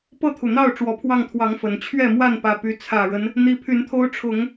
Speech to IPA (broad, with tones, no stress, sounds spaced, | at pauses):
p ɤ˥˨ t̪ʰ u˩ n̪ ɑ˥˨ ʊ̯ ʈ͡ʂ w ɔ˨˩ pʰ w ɑ˥˨ ŋ t̪ʰ w ɑ˨˦ ŋ f ə˨˩ n t͡ɕʰ ɥ ɛ˥˨ m w a˥˨ n p ä˨˩ p y˨˦ t͡sʰ ä˨˩ ɻ ə˦ n | n̪ i˨˦ pʰ y˨˦ n t̪ʰ o˦ ʊ̯ ʈ͡ʂʰ ʊ˨˦ ŋ